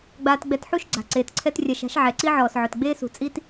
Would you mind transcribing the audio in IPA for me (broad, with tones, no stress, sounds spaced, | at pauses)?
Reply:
ɡ͡b aː˧ t ɡ͡b ɛ˧ t ħ u˦ ʃ ɡ͡ǀ a̤˨ ǀ eː˨ t ǀʰ ɛ˦ t rʲ a˧ ʃ a̤˦ ʃ ʕ ɛ˨ ǀ i˦ ʕ ɔː˨ s ʕ ʊ˨ t ɡ͡b eː˦ s ṳ˨ t͡sʼ i˦ t